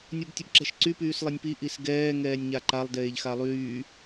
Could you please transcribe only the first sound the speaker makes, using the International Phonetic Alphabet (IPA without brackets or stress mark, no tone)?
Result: nʲ